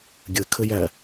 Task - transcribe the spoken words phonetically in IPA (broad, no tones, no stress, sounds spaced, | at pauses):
ɡʲ ɘ kʰ ɘ j æ